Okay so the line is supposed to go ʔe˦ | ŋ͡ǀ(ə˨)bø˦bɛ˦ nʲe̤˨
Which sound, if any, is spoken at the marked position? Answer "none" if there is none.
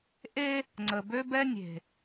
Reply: ə˨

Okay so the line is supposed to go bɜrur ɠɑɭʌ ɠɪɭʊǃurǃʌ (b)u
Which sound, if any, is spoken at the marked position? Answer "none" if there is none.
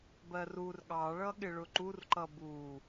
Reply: b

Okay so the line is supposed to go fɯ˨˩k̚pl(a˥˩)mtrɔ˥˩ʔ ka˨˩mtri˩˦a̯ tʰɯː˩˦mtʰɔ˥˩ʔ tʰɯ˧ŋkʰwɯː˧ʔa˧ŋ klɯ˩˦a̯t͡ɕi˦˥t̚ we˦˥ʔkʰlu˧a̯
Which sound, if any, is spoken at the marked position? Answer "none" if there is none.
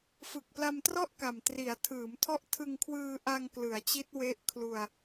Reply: a˧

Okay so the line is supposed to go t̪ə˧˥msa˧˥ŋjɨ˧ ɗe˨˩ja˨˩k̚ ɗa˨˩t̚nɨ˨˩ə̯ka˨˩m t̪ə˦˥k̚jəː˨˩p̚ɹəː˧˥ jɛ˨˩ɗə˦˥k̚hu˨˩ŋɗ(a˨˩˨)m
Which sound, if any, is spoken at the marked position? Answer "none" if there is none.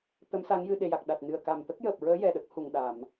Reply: a˨˩˨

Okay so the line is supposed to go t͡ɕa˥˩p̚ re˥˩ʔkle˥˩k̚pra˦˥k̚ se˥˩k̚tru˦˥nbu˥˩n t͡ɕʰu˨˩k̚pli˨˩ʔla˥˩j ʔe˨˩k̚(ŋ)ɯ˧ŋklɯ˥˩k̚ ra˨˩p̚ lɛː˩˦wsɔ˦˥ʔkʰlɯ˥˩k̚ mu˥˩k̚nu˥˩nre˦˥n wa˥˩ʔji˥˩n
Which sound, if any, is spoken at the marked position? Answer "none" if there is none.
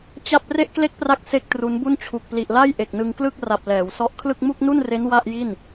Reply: n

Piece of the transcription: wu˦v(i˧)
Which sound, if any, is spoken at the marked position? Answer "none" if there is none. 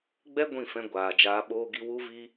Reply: i˦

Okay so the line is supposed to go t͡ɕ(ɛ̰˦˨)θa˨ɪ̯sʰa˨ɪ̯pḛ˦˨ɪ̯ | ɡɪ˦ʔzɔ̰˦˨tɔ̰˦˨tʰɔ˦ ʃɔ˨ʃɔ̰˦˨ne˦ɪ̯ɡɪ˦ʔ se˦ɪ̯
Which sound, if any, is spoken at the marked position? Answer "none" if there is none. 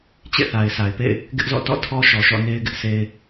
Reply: ḛ˦˨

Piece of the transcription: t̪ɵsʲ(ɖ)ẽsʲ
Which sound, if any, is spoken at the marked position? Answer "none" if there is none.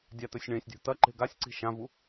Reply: ɳ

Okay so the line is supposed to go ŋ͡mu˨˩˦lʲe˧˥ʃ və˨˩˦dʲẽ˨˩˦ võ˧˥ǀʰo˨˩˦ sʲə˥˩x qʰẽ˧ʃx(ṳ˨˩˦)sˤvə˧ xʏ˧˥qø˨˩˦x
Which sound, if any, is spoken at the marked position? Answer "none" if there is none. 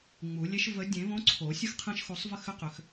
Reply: u˨˩˦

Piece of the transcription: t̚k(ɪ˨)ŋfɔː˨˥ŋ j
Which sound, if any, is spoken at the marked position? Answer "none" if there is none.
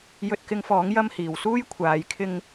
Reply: ɪ˧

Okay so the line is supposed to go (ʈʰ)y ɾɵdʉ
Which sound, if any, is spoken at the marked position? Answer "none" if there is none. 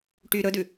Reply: ʈ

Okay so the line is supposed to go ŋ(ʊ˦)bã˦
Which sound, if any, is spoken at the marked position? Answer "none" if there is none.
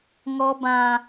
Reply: ɔ˦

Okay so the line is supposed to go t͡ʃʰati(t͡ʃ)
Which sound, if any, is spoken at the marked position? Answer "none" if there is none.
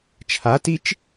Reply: t͡ʃ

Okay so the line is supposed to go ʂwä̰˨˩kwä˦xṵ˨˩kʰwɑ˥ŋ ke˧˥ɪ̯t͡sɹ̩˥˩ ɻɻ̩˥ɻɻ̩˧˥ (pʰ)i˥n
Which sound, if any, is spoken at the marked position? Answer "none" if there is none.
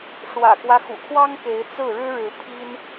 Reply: pʰ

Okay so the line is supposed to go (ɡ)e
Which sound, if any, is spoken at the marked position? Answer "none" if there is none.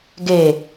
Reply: ɡ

